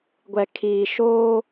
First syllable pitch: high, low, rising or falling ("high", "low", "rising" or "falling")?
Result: low